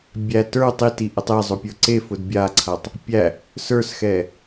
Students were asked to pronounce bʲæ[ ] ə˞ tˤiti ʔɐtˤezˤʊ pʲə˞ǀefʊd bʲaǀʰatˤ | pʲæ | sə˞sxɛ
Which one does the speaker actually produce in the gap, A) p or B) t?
B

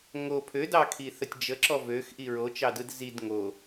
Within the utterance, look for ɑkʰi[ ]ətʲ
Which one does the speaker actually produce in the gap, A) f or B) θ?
B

